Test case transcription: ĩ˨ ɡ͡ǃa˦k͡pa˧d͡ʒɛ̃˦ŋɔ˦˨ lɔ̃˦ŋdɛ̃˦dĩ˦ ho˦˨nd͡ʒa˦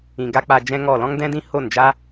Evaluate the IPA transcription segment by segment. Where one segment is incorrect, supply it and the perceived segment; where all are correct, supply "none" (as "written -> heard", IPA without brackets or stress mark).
ɡ͡ǃ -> ɡ